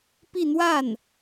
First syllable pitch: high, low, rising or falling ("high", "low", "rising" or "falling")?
falling